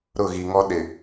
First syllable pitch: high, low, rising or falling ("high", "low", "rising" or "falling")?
falling